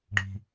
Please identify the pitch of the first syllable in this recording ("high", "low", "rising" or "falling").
low